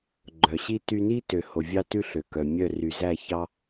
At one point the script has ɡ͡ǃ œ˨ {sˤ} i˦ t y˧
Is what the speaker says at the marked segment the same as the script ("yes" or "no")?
no